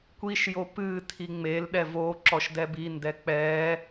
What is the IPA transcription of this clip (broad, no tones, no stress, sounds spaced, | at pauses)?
kʷ i ʃ j o p ɨ tʰ i ŋ͡m e l ɗ ɛ v o ǁ ɔ ʃ d ɛ b i n d ɛ k͡p ɛ